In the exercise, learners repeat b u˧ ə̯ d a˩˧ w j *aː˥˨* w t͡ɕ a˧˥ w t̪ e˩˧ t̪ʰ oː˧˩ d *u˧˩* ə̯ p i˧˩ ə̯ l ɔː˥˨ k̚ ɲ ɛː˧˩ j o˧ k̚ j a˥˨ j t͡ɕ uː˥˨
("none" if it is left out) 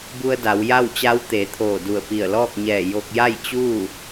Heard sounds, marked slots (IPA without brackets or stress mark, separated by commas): a˥˨, u˧˩